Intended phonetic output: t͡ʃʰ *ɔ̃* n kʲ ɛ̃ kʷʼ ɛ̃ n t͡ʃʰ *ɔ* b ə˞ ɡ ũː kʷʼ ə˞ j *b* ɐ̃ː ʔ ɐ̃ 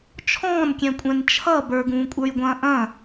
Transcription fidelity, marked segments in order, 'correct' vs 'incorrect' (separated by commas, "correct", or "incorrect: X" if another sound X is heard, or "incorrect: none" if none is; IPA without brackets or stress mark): incorrect: ɔ̃ː, incorrect: ʌ, incorrect: ɡʷ